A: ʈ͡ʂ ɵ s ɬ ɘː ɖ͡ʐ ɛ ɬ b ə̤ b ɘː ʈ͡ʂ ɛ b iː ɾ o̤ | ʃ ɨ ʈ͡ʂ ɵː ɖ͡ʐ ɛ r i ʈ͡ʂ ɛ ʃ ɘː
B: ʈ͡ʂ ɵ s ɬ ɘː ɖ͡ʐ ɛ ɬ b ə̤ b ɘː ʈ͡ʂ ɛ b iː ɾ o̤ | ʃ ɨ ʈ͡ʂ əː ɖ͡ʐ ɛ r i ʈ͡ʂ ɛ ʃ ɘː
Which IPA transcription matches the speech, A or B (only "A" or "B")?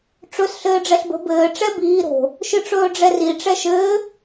A